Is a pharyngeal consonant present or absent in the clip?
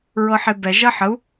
present